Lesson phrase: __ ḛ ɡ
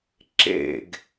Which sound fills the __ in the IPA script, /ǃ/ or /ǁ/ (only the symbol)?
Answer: ǁ